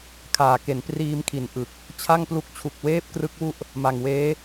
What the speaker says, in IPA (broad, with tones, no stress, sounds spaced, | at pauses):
kʰ aː˨˩ k e˩˦ n p r iː˧ m kʰ i˨˩ n ʔ ɯ˨˩ k̚ | t͡ɕʰ a˥˩ ŋ p l u˦˥ k̚ t͡ɕʰ u˨˩ k̚ w eː˥˩ p̚ k r ɯ˦˥ k̚ w u˥˩ ʔ | m a˨˩ ŋ w eː˦˥